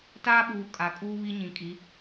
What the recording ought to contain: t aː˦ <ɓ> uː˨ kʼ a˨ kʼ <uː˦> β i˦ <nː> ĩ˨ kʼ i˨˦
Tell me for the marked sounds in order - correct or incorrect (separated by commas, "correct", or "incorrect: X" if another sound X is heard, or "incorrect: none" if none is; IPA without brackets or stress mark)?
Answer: correct, correct, incorrect: ɲ